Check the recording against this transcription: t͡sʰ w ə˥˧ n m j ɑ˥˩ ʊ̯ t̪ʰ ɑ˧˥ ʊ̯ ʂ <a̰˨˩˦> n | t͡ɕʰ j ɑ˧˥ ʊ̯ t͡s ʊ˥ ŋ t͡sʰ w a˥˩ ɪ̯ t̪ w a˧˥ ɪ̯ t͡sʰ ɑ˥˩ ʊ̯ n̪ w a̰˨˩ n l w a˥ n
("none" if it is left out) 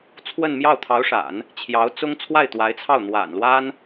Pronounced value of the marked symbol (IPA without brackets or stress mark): a̰˨˩˦